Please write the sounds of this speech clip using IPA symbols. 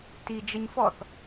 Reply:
t i d͡ʒ ə ɲ f ɔ θ

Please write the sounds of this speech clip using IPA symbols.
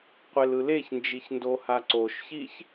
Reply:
qʷ e l ɯ l e ç n d͡ʒ i ç n d o h a ǀ o ʃ ç i ç

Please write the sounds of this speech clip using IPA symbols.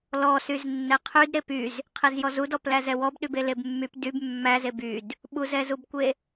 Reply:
l ɔ s y z nː ɛ qʰ y d ɾ e p y z | qʰ e z j ɔ z u d ɔ p l æ z ɛ w ɔ b ɗ y b e l e b mː y p d y b mː æ z e b y d | ɓ u z ɛ z u b kʷ e

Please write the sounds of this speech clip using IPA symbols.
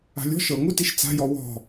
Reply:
a̤ lʲ ɔ̤ ʃ ɤ ŋ u t i ʃ t͡s a̤ j ɔ w ɔ̤

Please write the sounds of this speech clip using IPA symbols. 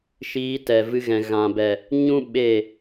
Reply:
ʃ iː˧ t ɛ˨ v ɨ˧ ɣ ɛ̃˨ ɣ ã˨ b ɛ˨ | ɲ ũ˦ ɓ e˦˨

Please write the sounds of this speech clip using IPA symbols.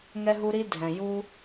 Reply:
ŋ ɛ˦ ɦ u˦ ɾ i˦ dʱ ɛ̃˨ j u˦

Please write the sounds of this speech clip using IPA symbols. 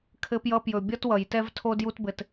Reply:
kʰ ɘ˧ p j ʌ˧ p j ɵ˨ bʲ ʌ˦ t w ʌ˨ j t ɛ˦ v tʰ o˦ d j u˦ t b ɘ˧ t

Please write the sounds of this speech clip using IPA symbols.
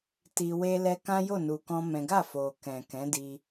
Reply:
t i˧ w e˦ l ɛ˦ k ã˦ j o˦˨ n u˨ k ɔ̃˧ m ɛ̃˦ ɡ a˦˨ f o˨ k ɛ̃˨ k ɛ̃˨˦ d i˧

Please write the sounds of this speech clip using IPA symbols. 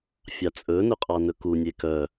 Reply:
fʲ ɑ t͡sʼ ɵ n ɵ qʼ ɑ n ɵ k u nʲ e k œ

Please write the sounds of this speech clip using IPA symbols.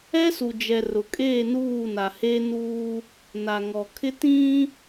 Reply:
ɛ˦ s u˨ d͡ʒ ɛ˨ r ʊ˨ kʼ eː˦˨ n uː˦˨ n a˨ h e˦ n uː˦ | n a˨ ŋ ɔ˨ kʰ ɪ˦ t ĩ˦

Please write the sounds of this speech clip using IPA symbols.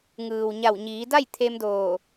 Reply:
ŋ ɯː˩ w ɲ a˧˩ w ɲ iː˩˧ d a˥˨ j t̪ʰ e˧ m d oː˧˩

